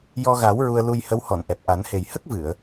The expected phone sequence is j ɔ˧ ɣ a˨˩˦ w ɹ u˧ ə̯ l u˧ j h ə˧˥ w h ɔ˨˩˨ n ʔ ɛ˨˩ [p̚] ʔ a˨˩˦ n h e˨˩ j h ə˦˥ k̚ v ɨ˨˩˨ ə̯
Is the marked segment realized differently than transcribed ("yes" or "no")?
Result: no